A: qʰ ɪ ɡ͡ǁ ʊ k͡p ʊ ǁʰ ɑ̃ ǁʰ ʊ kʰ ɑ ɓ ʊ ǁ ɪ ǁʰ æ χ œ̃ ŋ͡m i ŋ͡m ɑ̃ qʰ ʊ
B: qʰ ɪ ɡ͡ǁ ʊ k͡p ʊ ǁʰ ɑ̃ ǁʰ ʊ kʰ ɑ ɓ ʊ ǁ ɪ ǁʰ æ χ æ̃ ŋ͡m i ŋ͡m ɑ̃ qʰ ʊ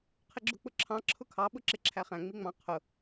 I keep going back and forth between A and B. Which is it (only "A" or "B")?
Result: B